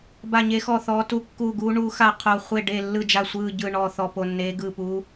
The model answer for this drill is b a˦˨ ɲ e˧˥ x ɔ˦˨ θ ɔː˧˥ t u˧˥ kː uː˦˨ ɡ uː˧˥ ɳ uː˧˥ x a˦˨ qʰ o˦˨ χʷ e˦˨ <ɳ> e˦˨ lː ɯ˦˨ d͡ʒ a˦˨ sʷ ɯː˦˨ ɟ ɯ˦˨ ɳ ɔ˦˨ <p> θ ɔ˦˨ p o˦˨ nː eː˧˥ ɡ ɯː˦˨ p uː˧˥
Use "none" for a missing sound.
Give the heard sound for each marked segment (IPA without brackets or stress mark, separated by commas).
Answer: ɖ, none